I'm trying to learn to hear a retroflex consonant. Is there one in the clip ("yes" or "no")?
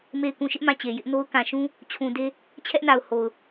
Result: no